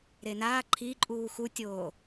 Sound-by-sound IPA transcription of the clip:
ɾenaː ǃʰiǃʼuː xutʲoː

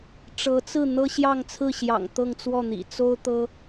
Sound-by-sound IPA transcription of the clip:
ʈ͡ʂɤ˧˥t͡sɹ̩˥˩ n̪ɤ˥ɕjɑ˥˧ŋt͡sʰɹ̩˥˩ɕjɑ̰˨˩ŋ t̪ɤ˥˧ŋt͡swɔ˥˩n̪ḭ˨˩ t͡so˥ʊ̯t̪ɤ˥

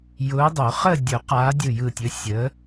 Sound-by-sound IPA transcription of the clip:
jʊː˨˦dˤo˨˩˦ χə˥˧ dʲʊ˨˩˦ qaː˨˦dʲɯ˧˩jɯ˧˩tʲɵ˨˦ sʲəː˨˦

